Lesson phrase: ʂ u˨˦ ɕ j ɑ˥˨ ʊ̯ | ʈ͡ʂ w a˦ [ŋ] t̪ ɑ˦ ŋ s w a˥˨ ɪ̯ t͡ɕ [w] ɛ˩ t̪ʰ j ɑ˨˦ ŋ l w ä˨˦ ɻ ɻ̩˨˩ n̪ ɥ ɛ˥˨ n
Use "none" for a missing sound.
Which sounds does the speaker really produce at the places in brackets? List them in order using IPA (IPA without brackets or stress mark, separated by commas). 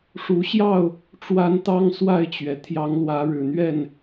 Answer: n, ɥ